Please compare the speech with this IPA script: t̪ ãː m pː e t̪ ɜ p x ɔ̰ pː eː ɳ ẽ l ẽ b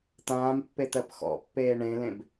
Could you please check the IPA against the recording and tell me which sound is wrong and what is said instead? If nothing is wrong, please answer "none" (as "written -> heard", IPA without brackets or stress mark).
none